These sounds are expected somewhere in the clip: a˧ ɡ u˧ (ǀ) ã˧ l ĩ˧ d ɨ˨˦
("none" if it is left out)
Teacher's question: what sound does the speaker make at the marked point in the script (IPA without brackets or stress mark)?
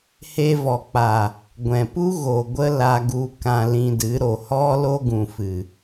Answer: k